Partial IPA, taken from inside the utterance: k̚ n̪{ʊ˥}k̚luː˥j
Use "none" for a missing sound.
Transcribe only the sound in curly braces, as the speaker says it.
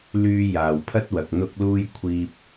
ʊ˥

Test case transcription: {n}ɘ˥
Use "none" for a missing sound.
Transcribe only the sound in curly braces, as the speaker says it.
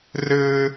r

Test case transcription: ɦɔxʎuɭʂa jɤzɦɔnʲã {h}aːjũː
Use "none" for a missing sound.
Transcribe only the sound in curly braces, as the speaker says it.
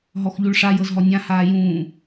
h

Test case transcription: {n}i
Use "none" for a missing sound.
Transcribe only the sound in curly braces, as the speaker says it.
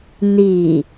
n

